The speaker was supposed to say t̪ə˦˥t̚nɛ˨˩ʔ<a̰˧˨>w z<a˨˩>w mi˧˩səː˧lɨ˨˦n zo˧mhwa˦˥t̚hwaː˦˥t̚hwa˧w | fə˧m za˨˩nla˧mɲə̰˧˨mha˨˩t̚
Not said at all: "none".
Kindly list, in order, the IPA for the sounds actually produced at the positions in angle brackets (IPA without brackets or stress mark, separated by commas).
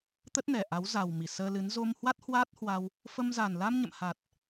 a˨˦, a˨˩